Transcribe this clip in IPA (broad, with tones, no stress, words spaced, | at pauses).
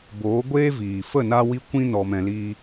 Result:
boː˨˦ɡʷeː˦viː˨ fə˦˨na˧wi˧ kʷĩ˦nɔ˧mɛ̃˧liː˦